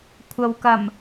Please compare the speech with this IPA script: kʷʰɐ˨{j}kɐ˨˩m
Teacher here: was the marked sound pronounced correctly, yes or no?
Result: no